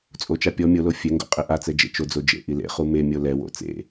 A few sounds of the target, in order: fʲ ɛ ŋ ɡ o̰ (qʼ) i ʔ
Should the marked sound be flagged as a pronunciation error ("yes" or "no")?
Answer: no